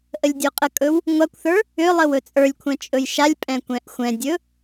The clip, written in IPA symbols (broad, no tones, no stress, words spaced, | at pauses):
ʔəlʲdʲoqʼəkʼɵw | ŋʷakʷθə˞ | ʏlˠəw ɵt͡sʼə˞lʲkʷʰɛ̃ t͡ʃʼɵjʃalʲpʼɛ̃ kʷɛ̃ʔxʷɛ̃dʲɵ